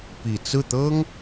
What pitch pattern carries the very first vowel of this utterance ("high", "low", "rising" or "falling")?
low